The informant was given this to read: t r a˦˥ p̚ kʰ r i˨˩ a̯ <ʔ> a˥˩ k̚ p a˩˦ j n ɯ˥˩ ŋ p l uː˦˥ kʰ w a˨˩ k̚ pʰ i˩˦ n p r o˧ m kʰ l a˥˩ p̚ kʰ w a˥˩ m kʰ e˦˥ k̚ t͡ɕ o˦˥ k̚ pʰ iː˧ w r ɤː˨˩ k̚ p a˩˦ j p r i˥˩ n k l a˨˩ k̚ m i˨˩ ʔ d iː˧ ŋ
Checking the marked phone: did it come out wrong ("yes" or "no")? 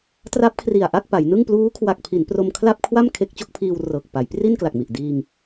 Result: no